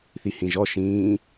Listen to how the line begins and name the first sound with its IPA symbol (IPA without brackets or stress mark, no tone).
θ